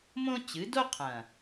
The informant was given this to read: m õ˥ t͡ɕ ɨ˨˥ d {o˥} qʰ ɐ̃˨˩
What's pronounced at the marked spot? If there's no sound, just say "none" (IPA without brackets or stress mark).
o˥